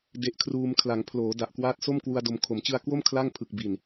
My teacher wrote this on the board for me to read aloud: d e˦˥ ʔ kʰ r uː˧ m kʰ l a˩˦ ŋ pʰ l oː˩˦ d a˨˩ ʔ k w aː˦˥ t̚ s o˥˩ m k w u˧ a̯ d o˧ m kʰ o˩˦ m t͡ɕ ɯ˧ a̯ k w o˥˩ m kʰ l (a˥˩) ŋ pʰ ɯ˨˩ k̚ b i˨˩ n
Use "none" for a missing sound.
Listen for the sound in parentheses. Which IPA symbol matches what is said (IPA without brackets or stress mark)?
a˥˩